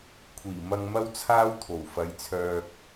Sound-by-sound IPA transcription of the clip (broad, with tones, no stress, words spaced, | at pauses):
kʷʰiː˨˩mɐ˧ŋ mɐ˥wt͡sʰaː˥wt̪ʰo˨˩w fɐ˨˧jt͡sʰœː˧k̚